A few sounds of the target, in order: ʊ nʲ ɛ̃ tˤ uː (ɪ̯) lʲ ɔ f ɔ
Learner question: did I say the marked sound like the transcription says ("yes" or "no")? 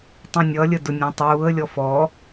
no